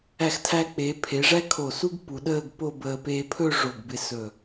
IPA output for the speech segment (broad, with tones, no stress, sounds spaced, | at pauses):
æ˧˩ x tʰ æ˧ k͡p eː˩˧ pʰ e˩˧ ʐ æ˥ kʰ o˧˩ s u˥ ɡ p u˩˧ ɗ əː˥˧ ɡ p o˥˧ b əː˧ p e˧ pʰ ɵ˥˧ ʐ o˧˩ ɡ b ɪ˧ s ɵ˧˩